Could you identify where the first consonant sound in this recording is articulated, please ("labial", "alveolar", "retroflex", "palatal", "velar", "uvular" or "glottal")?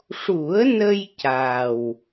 retroflex